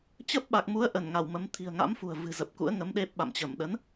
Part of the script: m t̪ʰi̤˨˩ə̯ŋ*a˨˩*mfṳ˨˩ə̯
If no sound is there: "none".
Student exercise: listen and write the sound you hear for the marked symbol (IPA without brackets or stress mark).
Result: a̰˧˥